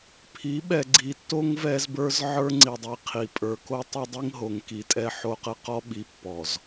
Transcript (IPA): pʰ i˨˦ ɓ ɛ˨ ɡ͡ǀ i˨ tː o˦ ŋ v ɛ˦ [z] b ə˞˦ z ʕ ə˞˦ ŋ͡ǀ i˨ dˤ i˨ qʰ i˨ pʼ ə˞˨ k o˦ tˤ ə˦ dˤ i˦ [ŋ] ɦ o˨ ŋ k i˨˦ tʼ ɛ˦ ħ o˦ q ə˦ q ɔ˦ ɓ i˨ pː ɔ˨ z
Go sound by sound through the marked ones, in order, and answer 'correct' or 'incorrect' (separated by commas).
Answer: correct, correct